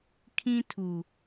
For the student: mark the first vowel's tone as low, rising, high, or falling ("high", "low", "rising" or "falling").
high